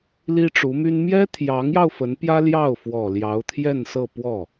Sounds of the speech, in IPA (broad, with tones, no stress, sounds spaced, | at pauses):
l i˥ ʈ͡ʂ u˧˥ m y˥ n m j ɛ˥ t̪ʰ j ɑ˧˥ ŋ j ɑ˧ ʊ̯ f ə˧˥ n p j ä˥ l j ɑ˥˩ ʊ̯ f w ɔ˨˩ l j ɑ˧˥ ʊ̯ t̪ʰ j ɛ˥˧ n s ɤ˥˧ p w ɔ˥˩